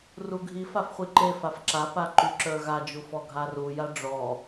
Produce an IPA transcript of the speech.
r u ɡʱ i f a f χʷ i ǃ e f a f ǁ a p a ǃ y ǁ ə˞ ɣ a d͡ʒ u f ɔ ɡʱ a r u j a ɖ͡ʐ ɔ

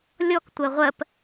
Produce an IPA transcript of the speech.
lʲ ɔ k tʷ ɜ ʁʷ ɜ p

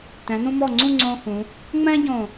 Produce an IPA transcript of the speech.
t ɛ̃˩˧ n ũ˧ m ɔ˧˩ ŋ͡ǀ ũ˥˧ ŋ͡ǀ õː˧ h ũ˩˧ | ŋ͡m ɛ̃ː˥ ɟ õ˧˩

